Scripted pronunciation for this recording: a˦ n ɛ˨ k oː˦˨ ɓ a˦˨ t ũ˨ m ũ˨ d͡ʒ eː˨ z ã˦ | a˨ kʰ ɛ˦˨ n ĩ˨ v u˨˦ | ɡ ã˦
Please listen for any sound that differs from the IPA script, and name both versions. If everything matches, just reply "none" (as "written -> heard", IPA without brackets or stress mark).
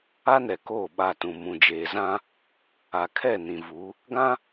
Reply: none